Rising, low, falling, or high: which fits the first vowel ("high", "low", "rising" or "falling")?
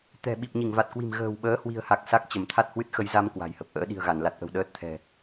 low